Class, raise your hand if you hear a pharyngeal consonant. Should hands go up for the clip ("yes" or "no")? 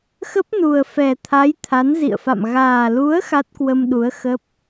no